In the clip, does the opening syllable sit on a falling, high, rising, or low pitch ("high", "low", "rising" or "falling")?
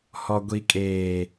low